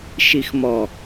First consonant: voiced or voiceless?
voiceless